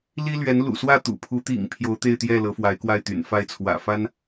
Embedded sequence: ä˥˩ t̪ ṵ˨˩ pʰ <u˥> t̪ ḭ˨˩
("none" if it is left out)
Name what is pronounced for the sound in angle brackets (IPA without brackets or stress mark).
u˧˥